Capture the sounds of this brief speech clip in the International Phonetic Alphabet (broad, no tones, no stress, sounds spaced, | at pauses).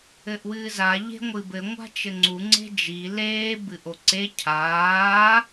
ɘ ʔ w ɨː z a ʎ e̤ ŋʷ ɨ b ɘ ŋʷ a̤ t͡ʃ ɘ ŋ͡ǀ u ŋ͡ǀ e̤ d͡ʒ i l eː b ɨ ʔ o ǀ e cʰ aː